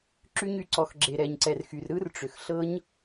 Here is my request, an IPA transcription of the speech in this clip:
ǁ y˧ ɲ y˨ ǀ ɔ˨ x ɡ͡ǁ e˨ ɾ ɛ˨ ɲ ǀ ɛ˨ r x y˨ r ɾ ɯ˦ r ʈ͡ʂ ʏ˨ x ɬ ɤ˦ ɲ

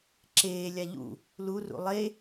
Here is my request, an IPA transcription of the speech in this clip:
ǁ eː lʲ a ʎ ṵ | l u r ṵ lˠ e

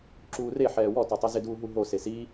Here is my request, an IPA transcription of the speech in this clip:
ǁ uː r e ħ ɛː w ɔ t ɔ tˤ ɛ z ɪ d uː ɦ u ɦ o s e s i

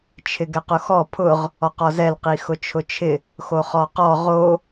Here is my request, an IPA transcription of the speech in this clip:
t͡ʃʰ ɪ ɡ ɛ q ʊ x ɔ pʰ ʊ ʁ | ɔ q ɔ z ɛ l q i x ʊ t͡ʃʰ ʊ t͡ʃʰ ɪ | x o χ ɔ q ɔ ʁ o

